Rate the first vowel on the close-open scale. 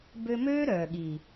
mid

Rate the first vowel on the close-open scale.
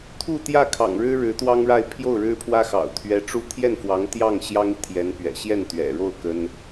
close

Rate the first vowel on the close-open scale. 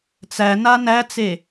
open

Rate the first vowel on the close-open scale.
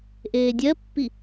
mid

